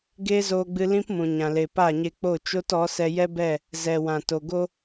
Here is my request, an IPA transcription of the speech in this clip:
ɡeː˦zoː˧ɡ͡bɨ˧ lĩ˦p mũ˨ɲã˨le˨ pa˦˨ɲe˧k͡po˦˨t͡ʃo˦t ɔ˨˦sɛ˧ jɛ˦bɛ˦˨ | zɛ˨wã˨to˨ ɡo˦

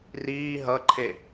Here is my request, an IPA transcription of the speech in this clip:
riː ɦʌǃʰe

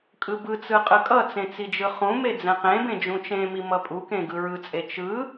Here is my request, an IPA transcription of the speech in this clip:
kʼɯbɯt͡sɯ qʼɯkʼʌt͡sẽ t͡sid͡ʒɯχũme d͡zɛ̃qẽbẽ d͡ʒũt͡ʃẽmi mʌpʼukẽ ɡɯɹɯt͡sʼe t͡ʃɯ

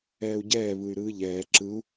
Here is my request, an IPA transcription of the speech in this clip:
ɛːu̯ɟɛː βɯy̯ɾɯːʎɛː ǁɯu̯

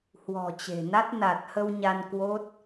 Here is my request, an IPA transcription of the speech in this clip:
hwɔ̤˨˩t͡ɕe̤˨˩na˦˥t̚ na˨˩t̚hə˧w ɲa˧nkwo˦˥t̚

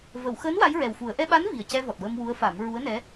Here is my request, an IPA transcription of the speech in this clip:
və˨˩˨wxəː˧˥n wa˧˥jɹɛ˨˩wfu˨˩˦ə̯ ʔɛ˧ɓa˧˥n vi˨˩ə̯cɛ˧vɔ˨˩t̚ wə˧mwu˧˥ə̯fa˨˩˦m ɹu˧˥ə̯nɛ˧˥

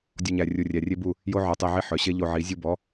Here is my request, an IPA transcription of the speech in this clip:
dʲɔ˧ɲæ˨rʲu˨ rʲæ˨rʲe˦bu˦˨ | jo˦ʕœ˨˦tˤe˧ʕi˦˨ ħœ˨ ɕe˦ʎo˧ʕi˨˦ zʲu˧bɔ˨˦

